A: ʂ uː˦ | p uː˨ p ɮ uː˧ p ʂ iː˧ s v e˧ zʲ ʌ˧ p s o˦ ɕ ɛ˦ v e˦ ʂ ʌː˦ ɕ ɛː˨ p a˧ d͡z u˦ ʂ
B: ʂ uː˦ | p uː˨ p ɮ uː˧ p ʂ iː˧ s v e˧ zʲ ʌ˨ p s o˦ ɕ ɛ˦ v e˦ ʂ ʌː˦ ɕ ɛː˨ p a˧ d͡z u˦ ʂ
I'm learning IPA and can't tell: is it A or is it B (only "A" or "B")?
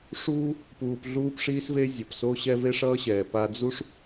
B